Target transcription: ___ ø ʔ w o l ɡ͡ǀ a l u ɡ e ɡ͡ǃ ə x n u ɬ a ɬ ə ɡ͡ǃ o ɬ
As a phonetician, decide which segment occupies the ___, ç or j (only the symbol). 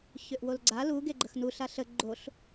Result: ç